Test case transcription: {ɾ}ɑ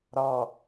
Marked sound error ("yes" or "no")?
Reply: no